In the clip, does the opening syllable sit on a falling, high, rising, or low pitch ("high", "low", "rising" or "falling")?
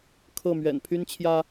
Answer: falling